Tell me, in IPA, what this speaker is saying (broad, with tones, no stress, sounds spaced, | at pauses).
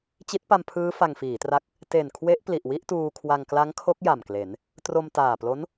t͡ɕ i˦˥ t̚ p a˧ m pʰ ɯː˦˥ f a˧ ŋ f iː˩˦ t r a˦˥ k̚ | t e˨˩ n kʰ w e˦˥ ʔ p l i˨˩ ʔ w i˥˩ ʔ t uː˧ kʰ w a˧ ŋ k l a˦˥ ŋ kʰ o˦˥ k̚ j a˨˩ m k l e˩˦ n | t r o˧ m t aː˨˩ p l o˦˥ n